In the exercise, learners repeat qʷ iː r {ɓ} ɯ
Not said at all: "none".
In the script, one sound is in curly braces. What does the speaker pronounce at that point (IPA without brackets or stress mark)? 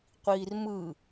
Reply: m